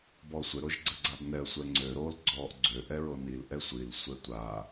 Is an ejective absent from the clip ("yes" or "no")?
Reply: yes